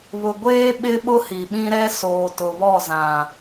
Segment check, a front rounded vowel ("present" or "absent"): absent